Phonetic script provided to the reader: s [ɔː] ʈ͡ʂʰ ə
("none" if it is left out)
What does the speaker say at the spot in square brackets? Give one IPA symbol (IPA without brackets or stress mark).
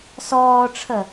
ɔː